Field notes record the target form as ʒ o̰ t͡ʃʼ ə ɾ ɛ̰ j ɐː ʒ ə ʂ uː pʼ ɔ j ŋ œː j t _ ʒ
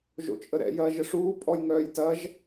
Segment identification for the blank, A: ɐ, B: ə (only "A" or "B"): A